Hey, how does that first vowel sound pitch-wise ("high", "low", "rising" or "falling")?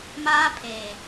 high